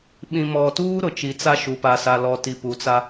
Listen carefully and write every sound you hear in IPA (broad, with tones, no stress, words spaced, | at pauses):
ɓĩ˨mɔ˨tuː˦ ɾʊ˨t͡ʃi˨t͡sa˦ʃu˨ pa˨sa˨lɔ˨ ti˨ pu˨t͡sa˦